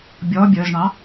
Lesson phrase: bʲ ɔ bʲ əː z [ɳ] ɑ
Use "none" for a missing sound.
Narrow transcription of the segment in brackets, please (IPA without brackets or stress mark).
ɳ